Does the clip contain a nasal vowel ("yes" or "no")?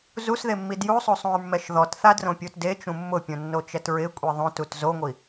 yes